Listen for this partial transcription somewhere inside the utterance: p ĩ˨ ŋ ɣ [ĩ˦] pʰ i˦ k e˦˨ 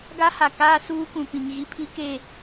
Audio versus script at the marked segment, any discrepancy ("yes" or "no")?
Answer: yes